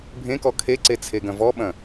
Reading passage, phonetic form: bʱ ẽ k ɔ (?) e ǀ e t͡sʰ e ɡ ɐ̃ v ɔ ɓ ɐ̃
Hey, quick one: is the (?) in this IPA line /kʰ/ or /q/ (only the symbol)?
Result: kʰ